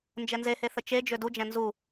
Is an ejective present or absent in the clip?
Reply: absent